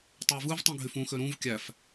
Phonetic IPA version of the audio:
tˤ ø v ɯ v tˤ ũ ɡʱ y f ũ x ø ɾ ũ v kʲ æ f

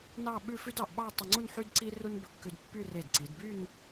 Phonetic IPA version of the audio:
n ɑ˥˧ ɓ ʉ˥˧ f ʉ˥ d ɑ˩˧ ʔ ɓ ɑ˥˧ tˤ i˧ ŋ͡ǀ u˥˧ n ħ y˥ d ǀ i˥ r u˥ n b ɵ˧ kː ʉ˧ d pː y˥˧ r e˧˩ d ǀ i˩˧ d b y˥˧ n

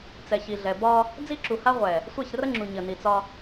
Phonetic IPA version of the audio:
t͡s ɛ˨ ç i˨ ɮ ɛ˨ b ɒ˦ | d͡z i˦ ǁ u˨ h a˦ ʁʷ ɛ˨ | sʷ ɛ˦˨ ç r ə˦ ŋ͡ǁ u˨ ɲ ə˨ n i˨ t͡s ɒ˦

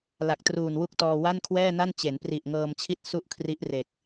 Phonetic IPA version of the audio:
l a˨˩ k̚ t r uː˨˩ n w u˥˩ k̚ t ɔː˧ w a˥˩ n kʰ w ɛː˥˩ n a˥˩ n t͡ɕ e˩˦ n p r i˨˩ ʔ ŋ ɤː˧ m t͡ɕʰ i˥˩ t̚ s u˥˩ ʔ kʰ r i˦˥ ʔ r e˨˩ k̚

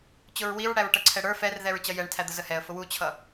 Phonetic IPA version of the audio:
t͡ɕ ʊ ɹ w i ɹ ɽ æ ɹ ʈ ʌ ǀʰ ɛ ɽ ə˞ f ɛ r ð ɛ ɹ t͡ɕ ʌ j ɛ ɳ tʰ æ d̪ ə z ə h ɛ ə̯ f ʊ w u t͡ɕʰ ʌ

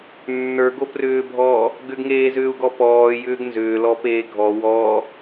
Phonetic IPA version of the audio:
nː ə˞ ɡ o p r ʏː bʱ ɔː | ɡ ʏ ɡ ŋ eː z ʏː u̯ ɡ ɔ p ɔː j ʏː ɡ n z ʏː l ɔ p eː ɡʱ ɔ w ɔː

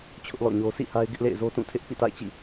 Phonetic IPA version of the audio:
t͡ɕʰ ʊ˦ ʔ l ɔ̰˦˨ ɲ o˦ s ḭ˦˨ h a˦ ɪ̯ ɡ ɪ˦ ʔ l ḛ˦˨ ɪ̯ z o˦ t ũ˦˨ tʰ ɪ˦ ʔ p ḭ˦˨ t a̰˦˨ ɪ̯ t͡ɕ ḭ˦˨

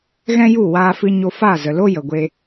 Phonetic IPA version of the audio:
ɣ ɛ̃˦ j u˦˨ w aː˧ f ɨ˧ ɲ o˧ f a˦˨ z ə˨ l o˦ j ə˨ ɡʷ e˧

